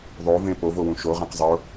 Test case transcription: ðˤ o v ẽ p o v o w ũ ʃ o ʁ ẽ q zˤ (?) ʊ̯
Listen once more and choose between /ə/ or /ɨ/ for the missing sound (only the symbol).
ə